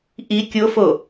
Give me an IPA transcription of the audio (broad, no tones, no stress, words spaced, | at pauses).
ʔi kʲofo